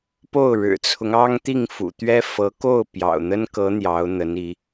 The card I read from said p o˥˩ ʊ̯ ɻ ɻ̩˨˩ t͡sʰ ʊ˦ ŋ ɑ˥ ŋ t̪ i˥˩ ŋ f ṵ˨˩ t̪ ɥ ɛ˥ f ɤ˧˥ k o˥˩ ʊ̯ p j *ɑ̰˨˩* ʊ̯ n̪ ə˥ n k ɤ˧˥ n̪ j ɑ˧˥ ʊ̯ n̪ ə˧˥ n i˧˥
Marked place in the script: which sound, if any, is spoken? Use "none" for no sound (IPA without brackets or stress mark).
ɑ̰˨˩